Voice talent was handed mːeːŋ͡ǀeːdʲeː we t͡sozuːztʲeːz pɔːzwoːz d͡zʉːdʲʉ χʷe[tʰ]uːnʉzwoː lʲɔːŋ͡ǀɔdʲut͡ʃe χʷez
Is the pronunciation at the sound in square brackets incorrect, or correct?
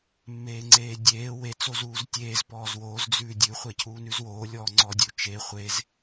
incorrect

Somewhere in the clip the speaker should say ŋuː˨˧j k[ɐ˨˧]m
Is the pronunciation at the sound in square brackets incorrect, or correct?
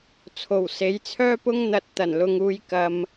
incorrect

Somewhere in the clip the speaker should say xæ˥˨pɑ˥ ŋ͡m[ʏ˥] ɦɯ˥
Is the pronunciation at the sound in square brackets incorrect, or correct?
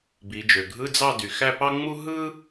incorrect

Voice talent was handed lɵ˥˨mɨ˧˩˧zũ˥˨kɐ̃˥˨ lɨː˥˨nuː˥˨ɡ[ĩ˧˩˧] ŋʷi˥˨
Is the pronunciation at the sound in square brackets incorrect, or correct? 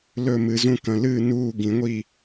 correct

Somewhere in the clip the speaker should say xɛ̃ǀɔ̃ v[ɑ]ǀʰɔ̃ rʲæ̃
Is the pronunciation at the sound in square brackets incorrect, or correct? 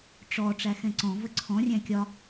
incorrect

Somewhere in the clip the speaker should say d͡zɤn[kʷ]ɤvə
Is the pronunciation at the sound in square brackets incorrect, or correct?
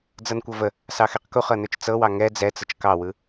correct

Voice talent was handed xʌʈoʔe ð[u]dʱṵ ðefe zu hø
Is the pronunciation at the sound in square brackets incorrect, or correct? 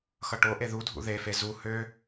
correct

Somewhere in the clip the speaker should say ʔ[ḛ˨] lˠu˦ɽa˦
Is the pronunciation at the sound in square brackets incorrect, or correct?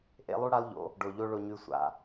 incorrect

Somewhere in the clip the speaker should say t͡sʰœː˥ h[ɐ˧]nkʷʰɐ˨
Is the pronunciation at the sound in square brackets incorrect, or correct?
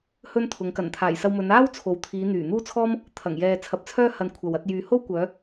correct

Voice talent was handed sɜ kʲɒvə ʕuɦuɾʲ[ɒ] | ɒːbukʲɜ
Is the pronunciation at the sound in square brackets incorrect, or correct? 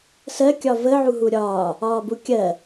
incorrect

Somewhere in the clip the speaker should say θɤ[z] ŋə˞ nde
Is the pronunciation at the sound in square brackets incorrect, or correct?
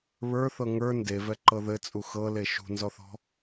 incorrect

